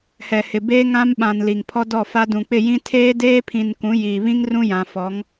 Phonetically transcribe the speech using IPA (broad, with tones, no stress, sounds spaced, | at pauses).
h ɛ˨ h ɪ˨ b eː˦ ŋ ã˦ m ɓ ã˨ n l i˨ ŋ pʰ ɔ˦ d ɔ˦˨ f a˦ d ũ˨ k͡p ɪ˦˨ j ĩ˦ tʰ eː˦ d eː˦ pʰ ĩ˨ n k ũ˨˦ j iː˨ β ĩ˦ ŋ r ũ˦ j ã˨ f ɔ˨˦ ŋ